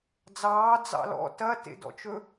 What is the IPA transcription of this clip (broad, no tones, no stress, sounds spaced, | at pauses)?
d͡z ɑː d͡z ɑ̰ l ɔ̰ t ɐ t ḛ d ɔ̰ t͡ʃ ɵ